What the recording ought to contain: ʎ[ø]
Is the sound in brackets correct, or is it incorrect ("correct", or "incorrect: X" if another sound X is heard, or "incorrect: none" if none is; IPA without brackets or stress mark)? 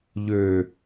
correct